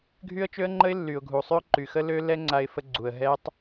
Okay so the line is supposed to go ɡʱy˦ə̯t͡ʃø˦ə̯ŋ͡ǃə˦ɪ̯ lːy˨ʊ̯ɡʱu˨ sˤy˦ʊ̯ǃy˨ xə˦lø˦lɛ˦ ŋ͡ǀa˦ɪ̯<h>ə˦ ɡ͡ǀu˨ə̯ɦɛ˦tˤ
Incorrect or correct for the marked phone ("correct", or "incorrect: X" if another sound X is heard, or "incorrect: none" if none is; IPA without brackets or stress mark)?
incorrect: f